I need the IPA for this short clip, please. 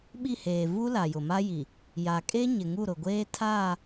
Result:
ɓ i˦˨ h eː˨ v u˦ l a˨ j ʊ˨ m a˦ j i˨ | j a˨ kʼ e˦ ɲ ɪ˨ ŋ u˦˨ ɾ ʊ˨ ɡʷ eː˦ tʰ aː˦˨

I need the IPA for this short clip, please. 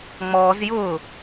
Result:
ŋ͡m ɔː z j ʊː

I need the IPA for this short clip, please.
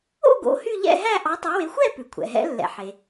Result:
o̰˥˧ ɡ o̰˨˦ h y˥˧ ʎ ɛ̰˥˧ ɦ æ˥˧ ʔ ɑ˨˦ tˤ o˨˦ w e˨˦ xʷ ɛ˥˧ p ʉ˩ kʷʰ ɛ̰˩ ɦ ɛ̰˨˦ lː ɛ̰˩ ħ e˩

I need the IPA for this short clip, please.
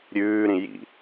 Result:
ɾʲ ʉː ɾ ĩ j ḭ

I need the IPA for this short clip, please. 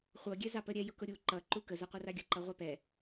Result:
χʷ ɤ ɡʲ ɛ z ɑ p ə ɾʲ ɛ j ʊ k ʊ ɾʲ u ǃ ʌ ǃ u k ə z a qʷ ɤ r a ɡʲ ʊ ǃ ʌ ʁʷ ɑ p ɛ

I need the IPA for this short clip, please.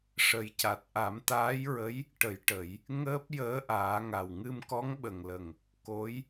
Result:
ʂ ə˨˩˦ j c a˨˩ t̚ ʔ a˨˩˦ m t̪ aː˧˥ j ɹ ə˧˥ j | ʈ ə˨˩˦ j ʈ ə˨˩˦ j | ŋ əː˦˥ p̚ j əː˧˥ ʔ aː˨˩˦ ŋ a˨˩ w ŋ ɨ˧ m k ɔ˧˥ ŋ ɓ ə˨˩ ŋ l ə˨˩ ŋ | k o˧˥ j

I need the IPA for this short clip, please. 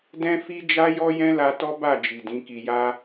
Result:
d ɛ̃˦ f i˦ d͡ʒ a˦ j ɔ˦ j ɛ̃˦ l a˧ t ɔ˦ b a˦˨ d͡ʒ i˨ d ĩ˨˦ k i˧ j a˦

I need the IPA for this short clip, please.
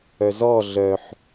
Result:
œ z ɔ ɮ œ ħ

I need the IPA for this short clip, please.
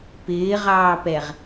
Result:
p ɪː ʁ ɑː p ɛ ʁ

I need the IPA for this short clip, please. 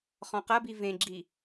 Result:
χ ɔ̃ q ɐ b i v ẽ ɡ͡ǁ i

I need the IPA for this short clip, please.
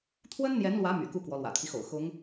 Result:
t̪ʰ w ə˥ n n̪ j ɛ˧˥ n l w ä˧˥ m y̰˨˩ k u˥˩ k w ɔ˧˥ l w ä̰˨˩ t̪ʰ i˦ x o̰˨˩ ʊ̯ x ʊ˧˥ ŋ

